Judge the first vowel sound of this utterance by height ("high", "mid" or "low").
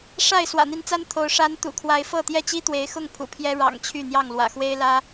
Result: low